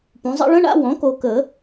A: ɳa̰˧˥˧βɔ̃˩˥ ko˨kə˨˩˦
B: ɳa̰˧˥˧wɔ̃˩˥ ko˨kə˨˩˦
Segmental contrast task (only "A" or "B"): B